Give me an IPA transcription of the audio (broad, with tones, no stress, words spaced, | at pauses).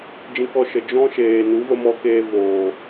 d͡ʒĩ˧kɔ˧ʃə˨ d͡ʒɔ̃˦ʃeː˨ nu˨˦ və˦mɔ˦keː˦ voː˨